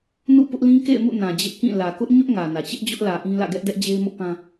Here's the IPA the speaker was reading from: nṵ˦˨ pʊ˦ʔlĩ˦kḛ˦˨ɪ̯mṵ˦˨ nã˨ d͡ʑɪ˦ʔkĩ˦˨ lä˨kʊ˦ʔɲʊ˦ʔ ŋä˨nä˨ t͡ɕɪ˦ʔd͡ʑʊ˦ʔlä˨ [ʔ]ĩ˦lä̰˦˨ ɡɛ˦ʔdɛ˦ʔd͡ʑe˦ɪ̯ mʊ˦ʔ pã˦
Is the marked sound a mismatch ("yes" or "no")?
no